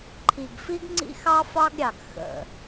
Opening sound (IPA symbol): ǃʰ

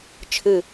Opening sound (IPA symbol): t͡ʃʰ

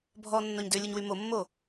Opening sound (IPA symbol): bʱ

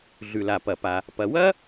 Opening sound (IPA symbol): ɮ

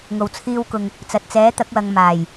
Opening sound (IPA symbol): ŋ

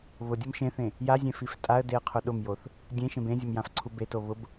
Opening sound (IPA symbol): β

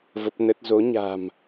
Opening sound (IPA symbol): v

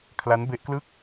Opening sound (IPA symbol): kʰ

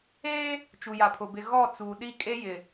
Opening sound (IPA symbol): eː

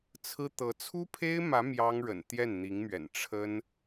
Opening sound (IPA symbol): t͡sʰ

